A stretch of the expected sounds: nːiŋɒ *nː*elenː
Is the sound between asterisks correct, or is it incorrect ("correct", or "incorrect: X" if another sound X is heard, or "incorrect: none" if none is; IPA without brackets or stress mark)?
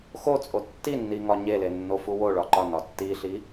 incorrect: ɲ